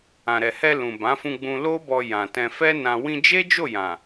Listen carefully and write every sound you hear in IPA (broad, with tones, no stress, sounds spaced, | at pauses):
ã˨ ɾ ɛ˨ h ɛ˧ l ũ˨ b ã˨˦ f ũ˧ ɡ͡b ũ˧ l o˦ b ɔ˧ j ã˨ t ɛ̃˧ f ɛ˦ n ã˧ w ĩ˧ d͡ʒ e˦ d͡ʒ o˦˨ j ã˨